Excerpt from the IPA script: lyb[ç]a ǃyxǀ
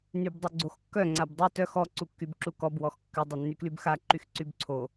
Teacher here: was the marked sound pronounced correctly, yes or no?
no